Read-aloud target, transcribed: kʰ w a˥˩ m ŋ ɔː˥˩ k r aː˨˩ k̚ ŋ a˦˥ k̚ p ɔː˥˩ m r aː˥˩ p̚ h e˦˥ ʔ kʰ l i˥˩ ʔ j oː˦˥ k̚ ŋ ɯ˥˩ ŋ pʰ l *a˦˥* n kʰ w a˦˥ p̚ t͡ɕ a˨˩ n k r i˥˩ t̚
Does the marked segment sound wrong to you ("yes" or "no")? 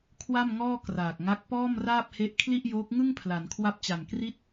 yes